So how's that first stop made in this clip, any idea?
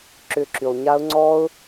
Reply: click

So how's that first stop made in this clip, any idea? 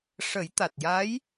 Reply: plain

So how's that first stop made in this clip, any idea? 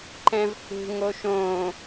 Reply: click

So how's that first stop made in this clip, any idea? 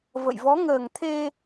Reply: aspirated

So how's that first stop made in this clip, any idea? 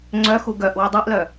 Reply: click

